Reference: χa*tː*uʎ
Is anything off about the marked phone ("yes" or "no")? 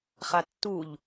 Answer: no